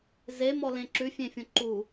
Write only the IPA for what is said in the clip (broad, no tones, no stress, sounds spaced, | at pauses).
z e m ɔ l ẽ ǁ ʉ fʲ ẽ fʲ õ ǃ u